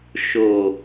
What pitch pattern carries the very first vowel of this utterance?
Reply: low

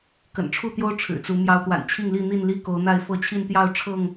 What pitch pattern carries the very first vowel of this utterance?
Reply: low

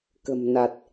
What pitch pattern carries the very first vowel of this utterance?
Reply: low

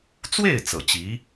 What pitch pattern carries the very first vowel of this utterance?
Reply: falling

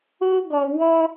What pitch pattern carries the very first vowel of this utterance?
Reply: high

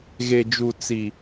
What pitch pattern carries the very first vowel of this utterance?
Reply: low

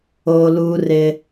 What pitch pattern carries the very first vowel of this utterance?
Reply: high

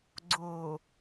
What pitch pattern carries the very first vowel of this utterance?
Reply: low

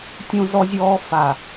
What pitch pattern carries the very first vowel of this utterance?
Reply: high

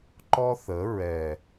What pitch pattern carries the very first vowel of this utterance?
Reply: high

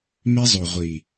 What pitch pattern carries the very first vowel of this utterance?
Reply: high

